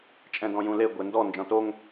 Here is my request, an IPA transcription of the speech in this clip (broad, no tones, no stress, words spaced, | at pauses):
t͡ʃʼɛ̃dɔ̃jũle ɡʷendɔ nd͡ʒɔ̃toŋ